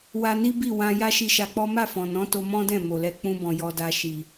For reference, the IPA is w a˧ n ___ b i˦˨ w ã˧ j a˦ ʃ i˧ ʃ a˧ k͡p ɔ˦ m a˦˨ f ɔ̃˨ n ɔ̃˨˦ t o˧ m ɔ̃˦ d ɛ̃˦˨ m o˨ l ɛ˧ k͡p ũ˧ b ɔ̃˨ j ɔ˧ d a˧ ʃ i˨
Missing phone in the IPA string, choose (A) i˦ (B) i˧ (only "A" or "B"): A